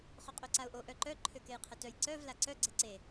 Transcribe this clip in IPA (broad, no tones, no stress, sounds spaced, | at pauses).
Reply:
χ o qʼ ø ǀ a ʊ̯ ʔ o ʔ œ ǃ œ ǃʰ ø k e j qʰ ə t œ j ǀ œ v l a ǀ œ ɡ͡ǀ e ǀ e